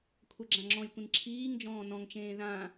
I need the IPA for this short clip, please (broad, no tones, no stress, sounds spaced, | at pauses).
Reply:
kʷʰ ɛ ɡ͡ǁ ã ŋ͡ǁ ɔ̃ j kʷ ĩ n ǁʰ iː ŋ d͡ʒ ɔ̃ː n ɔ̃ ŋ t͡ʃ ẽː ð ã